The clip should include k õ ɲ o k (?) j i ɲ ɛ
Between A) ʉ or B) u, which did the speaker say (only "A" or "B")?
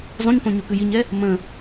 A